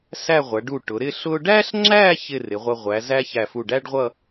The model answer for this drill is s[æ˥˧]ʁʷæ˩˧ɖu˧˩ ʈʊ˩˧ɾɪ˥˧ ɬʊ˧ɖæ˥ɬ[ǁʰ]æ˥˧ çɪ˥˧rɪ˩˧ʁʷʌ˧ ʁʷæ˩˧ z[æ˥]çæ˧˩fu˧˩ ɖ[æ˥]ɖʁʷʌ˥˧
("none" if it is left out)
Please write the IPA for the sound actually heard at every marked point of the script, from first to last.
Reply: æ˥˧, ŋ͡ǁ, æ˥, æ˥

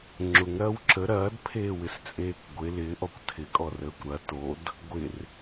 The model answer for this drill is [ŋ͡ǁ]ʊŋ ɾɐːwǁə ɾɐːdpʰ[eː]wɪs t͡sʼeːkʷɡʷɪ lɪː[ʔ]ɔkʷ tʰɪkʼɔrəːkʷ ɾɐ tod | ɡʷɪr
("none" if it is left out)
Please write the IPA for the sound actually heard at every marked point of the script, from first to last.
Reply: ŋ͡ǁ, eː, ʔ

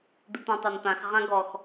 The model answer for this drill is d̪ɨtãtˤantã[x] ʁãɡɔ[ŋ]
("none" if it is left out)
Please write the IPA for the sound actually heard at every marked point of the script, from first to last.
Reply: x, x

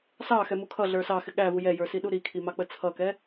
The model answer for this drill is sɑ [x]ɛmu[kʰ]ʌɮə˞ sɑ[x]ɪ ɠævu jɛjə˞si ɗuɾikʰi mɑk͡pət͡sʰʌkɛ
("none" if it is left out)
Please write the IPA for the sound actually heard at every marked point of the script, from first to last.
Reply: x, kʰ, x

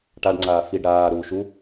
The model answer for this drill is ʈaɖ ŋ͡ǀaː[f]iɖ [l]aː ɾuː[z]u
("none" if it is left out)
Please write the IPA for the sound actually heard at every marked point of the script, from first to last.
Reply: f, ɾ, ʃ

